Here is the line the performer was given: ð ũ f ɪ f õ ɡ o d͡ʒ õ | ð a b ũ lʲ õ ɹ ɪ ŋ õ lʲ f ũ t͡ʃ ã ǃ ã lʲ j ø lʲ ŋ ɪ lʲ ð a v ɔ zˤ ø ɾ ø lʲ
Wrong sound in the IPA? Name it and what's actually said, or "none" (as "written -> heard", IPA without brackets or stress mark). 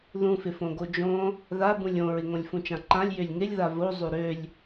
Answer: ɔ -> o